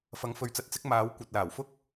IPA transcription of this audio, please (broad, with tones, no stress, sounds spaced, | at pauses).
f ɐ˨˧ ŋ f ɵ˨ ɥ t͡s ɐ˨˥ t̚ t͡s ɪ˨˥ k̚ m aː˨˥ w kʷ ɐ˨ t̚ l aː˨˩ w f ʊ˥ k̚